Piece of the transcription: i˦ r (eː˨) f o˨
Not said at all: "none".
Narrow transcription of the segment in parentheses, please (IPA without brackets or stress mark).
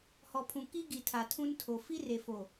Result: e˨